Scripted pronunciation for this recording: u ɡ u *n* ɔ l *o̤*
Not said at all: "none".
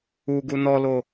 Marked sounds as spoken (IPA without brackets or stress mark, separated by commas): n, o